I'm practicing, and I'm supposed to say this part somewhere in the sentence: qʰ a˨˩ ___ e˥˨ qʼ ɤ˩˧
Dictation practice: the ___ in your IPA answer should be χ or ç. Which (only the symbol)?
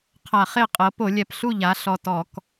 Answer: χ